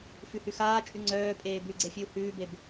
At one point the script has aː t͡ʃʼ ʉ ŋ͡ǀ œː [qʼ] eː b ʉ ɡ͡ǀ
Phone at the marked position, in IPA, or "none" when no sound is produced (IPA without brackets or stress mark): pʼ